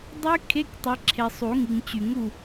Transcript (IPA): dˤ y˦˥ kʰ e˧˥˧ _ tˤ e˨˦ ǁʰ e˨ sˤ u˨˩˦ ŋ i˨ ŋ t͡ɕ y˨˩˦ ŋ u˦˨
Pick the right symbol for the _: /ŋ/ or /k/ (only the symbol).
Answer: k